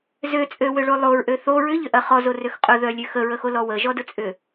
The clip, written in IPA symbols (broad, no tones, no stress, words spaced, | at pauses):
zøt͡sʼøwøɭo lˠoɹʔø θo ɹʏʎʏʔɐ χɔzorøx qʼʊðœlʲø xəɹəxolɔ wəʒɔdʊt͡sʼʏ